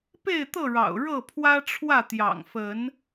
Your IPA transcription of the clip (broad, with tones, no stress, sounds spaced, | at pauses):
p e˥˨ ɪ̯ t̪ ɤ˥˨ ɻ ɑ̰˨˩ ʊ̯ ɻ ɤ˥˨ pʰ w ä˦ ʈ͡ʂʰ w ä˥˨ t̪ j ɑ̰˨˩ ŋ f ə˨˦ n